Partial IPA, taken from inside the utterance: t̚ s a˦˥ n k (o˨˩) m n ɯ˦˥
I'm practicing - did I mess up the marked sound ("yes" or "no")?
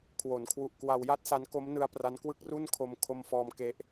yes